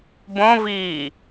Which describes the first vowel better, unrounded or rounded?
rounded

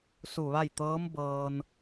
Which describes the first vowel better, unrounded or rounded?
rounded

